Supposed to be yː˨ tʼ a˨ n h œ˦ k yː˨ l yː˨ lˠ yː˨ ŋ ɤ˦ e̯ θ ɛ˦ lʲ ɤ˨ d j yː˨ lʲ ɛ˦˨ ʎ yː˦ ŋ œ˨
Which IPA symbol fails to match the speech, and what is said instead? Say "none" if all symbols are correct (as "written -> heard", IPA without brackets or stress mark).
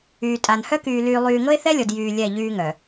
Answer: none